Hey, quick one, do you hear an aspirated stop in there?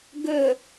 no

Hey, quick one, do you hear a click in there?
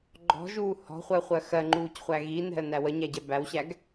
yes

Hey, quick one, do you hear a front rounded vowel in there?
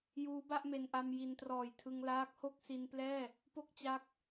no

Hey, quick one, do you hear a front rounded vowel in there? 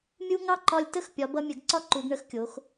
no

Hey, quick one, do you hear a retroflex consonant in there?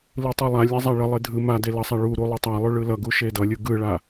yes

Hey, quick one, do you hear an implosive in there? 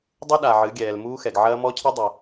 yes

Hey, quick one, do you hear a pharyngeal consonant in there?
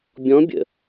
no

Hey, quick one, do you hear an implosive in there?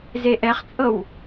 no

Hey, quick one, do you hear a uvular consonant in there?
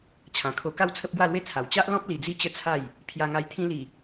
no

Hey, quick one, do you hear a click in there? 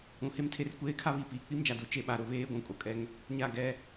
no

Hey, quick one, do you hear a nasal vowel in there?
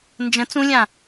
yes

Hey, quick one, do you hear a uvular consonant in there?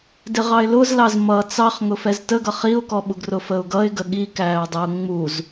yes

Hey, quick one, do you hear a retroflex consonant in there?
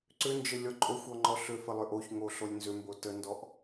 no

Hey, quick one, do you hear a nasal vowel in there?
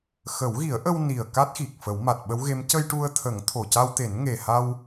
no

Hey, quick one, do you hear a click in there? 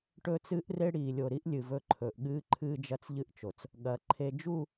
yes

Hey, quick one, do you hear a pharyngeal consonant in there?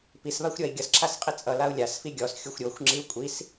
no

